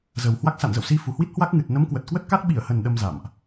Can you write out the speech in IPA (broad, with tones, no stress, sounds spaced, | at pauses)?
z ə˨˩ w h w a˦˥ k̚ s a̰˧˨ n z ə̰˧˨ w s i˧ f u˨˩ h w i˦˥ t̚ h w a˦˥ k̚ ŋ ɨ˨˩ t̚ n ə˨˦ m k w ə˨˩ t̚ k w ə˦˥ t̚ k a˦˥ t̚ ɓ i˧˩ ə̯ h ə˨˩ n ɗ ə˧ m z a̰˧˨ m ʔ